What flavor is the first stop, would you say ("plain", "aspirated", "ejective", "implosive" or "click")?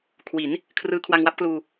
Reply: aspirated